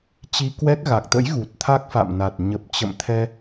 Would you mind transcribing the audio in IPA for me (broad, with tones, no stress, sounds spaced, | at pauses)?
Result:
t͡ɕ i˧ k w ɛ˦˥ k̚ ɣ a˨˩ k̚ t̪ ə̰˧˥ j ɣ u˨˩ t̚ t̪ʰ a˦˥ k̚ f a̰˧˨ m n a˨˩ t̚ ɲ ə˨˩ p̚ t͡ɕ ə̰˧˨ m t̪ʰ ɛ˧